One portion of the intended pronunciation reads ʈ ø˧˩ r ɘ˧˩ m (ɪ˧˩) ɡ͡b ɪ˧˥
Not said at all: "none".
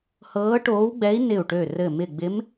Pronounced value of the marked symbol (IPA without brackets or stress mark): ɪ˧˩